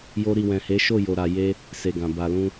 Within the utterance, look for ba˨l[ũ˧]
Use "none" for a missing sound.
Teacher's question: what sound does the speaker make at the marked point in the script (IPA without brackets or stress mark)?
ũ˧